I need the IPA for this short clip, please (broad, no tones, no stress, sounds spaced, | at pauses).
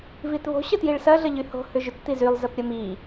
v i t β o̤ ɕ ə t j i ɭ s ɐ ɮ ə ʎ y h o̤ h ʏ ʒ ʏ t t̪ i z y lˠ z ə p ɾʲ ə m i